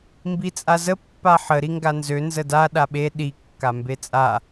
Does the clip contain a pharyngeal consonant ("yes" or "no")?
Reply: yes